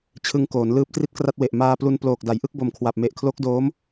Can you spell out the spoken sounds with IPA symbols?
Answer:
t͡ɕʰ ɯ˧ ŋ k oː˩˦ n l ɯː˦˥ p̚ t r i˥˩ t̚ k r a˥˩ t̚ w e˨˩ ʔ m aː˧ p l u˧ n p l oː˨˩ k̚ d a˩˦ j ʔ ɯ˥˩ k̚ b o˨˩ m kʰ w a˨˩ p̚ m e˨˩ ʔ kʰ l o˦˥ k̚ d oː˦˥ m

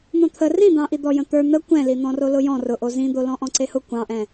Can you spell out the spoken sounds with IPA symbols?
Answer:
n̪ õ t̪ʰ ə r ĩ d̪ ɑ̃ ʔ i d̪ ɔ j ə̃ t̪ ə˞ n̪ ə kʷ ɛ̃ l i n̪ ɔ̃ r o l ʊ j ɔ̃ r ʊ ʔ o z ĩ d̪ o l ɔ̃ ʔ ɔ̃ ǀ e h ʊ kʷ ɑ̃ ʔ ɛ̃

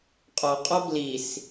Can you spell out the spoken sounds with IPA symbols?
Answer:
qʼ ɔ qʼ ɔ b l i s

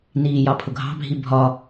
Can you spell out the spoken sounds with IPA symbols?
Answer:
n iː j ɑ pʰ ʊ ɡʱ ɑ̤ bʱ i bʱ ɒ

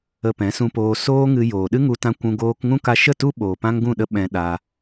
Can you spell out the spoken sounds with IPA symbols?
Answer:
ə˧ p ɛ̃˨˦ s ũ˧ p oː˧ s oː˦ ŋ ɨ˧ j oː˨ ɗ ɨ˦ ŋ u˧ t ã˧ kʷ ũ˧ ɡ oː˧ k ŋ ũ˦ k a˧ ʃ ə˦˨ t u˦ ɓ oː˨ p ã˦ ŋ ɡ ũ˦˨ ɗ ə˦ ɓ ɛ̃˧ ɗ a˧

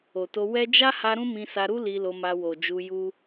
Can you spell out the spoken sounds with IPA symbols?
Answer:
o˨ t o˧ w ɛ˦ d͡ʒ a˦ h a˧ ɾ ũ˦ m ĩ˧ s a˧ ɾ u˦ l i˧ l o˧ m a˧ w o˨ d͡ʒ u˧ j u˦

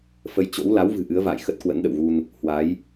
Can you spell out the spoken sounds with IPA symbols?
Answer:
f ə˧ j t͡ɕ o̰˧˥ w l a˨˦ w v ɨ̤˨˩ ʔ ɨ˨˦ ə̯ v a̰ː˧˨ j x ə˦˥ t̚ k w ə̰˧˥ n ɗ ə̰˧˨ w ɣ u˧ n | h w a˨˦ j

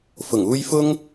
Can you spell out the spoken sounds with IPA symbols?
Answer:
f ʊ˨˩ ŋ uː˧ j f ʊ˥ ŋ

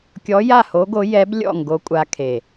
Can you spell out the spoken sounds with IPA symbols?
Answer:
kʲ ɔ˧˥ j a˥˨ h o˧˥ ɡ o˧˥ j ɛ˧˥ b lʲ ɔ̰˥˨ ŋ ɡ o˧˥ kʷʼ a˧˥ kʰ e˨˩

